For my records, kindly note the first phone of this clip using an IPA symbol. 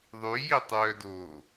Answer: ðˤ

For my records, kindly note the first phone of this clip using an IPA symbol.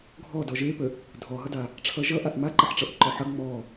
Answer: ɡʱ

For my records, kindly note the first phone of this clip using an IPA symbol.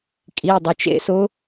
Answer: kʼ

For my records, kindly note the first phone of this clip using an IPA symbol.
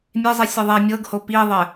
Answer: mʲ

